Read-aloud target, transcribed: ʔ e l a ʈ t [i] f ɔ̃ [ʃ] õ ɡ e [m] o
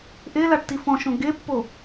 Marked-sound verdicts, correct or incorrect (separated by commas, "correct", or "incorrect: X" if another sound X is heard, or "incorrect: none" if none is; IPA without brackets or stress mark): correct, correct, incorrect: pː